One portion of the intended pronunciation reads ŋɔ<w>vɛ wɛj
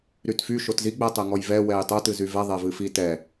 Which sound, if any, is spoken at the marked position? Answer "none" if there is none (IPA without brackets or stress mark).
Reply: j